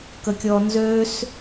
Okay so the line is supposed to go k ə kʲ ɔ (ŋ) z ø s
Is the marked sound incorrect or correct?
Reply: incorrect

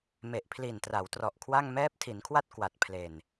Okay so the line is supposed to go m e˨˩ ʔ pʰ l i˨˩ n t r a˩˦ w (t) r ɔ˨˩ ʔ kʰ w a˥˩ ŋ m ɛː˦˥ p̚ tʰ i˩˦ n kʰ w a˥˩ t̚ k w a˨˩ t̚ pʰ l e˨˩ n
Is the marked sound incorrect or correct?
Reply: correct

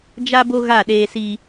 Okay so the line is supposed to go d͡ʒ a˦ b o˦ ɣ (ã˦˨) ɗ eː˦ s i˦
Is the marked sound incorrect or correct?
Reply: incorrect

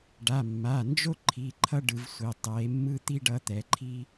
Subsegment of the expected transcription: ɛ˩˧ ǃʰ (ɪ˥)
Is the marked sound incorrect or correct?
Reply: incorrect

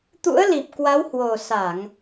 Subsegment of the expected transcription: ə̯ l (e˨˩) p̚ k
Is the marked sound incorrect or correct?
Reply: incorrect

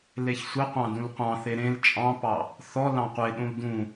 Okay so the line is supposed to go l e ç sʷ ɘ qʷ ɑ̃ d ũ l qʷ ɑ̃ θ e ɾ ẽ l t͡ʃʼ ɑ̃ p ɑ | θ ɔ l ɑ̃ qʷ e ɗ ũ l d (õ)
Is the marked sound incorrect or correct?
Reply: incorrect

